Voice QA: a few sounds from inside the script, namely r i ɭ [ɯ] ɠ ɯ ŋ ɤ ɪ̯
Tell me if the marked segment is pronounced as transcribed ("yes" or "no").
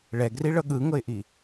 no